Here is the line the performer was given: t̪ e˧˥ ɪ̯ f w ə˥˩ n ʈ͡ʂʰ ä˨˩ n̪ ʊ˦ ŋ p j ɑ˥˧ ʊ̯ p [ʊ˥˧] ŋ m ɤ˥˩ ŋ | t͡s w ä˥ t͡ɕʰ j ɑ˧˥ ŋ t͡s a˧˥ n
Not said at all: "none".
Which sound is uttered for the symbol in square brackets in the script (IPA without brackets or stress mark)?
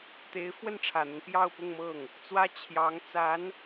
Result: ʊ˥˧